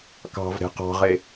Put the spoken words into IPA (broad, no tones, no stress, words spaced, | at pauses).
kɑ̤vɾe̤ qɑ̤ʁe